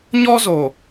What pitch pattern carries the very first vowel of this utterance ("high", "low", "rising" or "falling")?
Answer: high